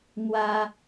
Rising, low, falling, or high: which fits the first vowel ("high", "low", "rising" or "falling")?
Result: high